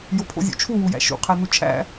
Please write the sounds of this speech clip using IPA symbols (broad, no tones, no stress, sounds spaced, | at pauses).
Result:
j o pʰ o̰ zʲ ṵ t͡ʃʰ u w u j æ̰ ʃ ṵ qʰ æ n u t͡ʃʰ æ̰